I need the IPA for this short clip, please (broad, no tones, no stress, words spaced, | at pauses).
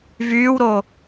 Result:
vyːwɾo